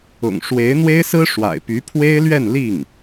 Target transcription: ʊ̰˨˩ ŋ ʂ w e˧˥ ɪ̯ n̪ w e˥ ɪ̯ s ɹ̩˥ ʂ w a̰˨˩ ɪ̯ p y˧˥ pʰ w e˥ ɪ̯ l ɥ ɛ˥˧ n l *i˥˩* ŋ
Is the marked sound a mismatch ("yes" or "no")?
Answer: no